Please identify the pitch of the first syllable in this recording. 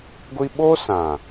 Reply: high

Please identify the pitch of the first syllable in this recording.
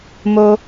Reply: high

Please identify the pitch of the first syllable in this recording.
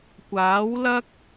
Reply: rising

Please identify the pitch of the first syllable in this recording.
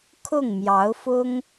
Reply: falling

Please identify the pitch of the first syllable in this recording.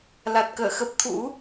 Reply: low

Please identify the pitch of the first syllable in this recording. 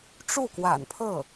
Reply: falling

